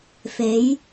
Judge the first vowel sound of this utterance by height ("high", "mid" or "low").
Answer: mid